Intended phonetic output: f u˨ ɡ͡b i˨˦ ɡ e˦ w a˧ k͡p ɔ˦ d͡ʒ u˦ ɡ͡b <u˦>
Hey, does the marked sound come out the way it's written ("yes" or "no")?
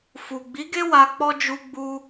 yes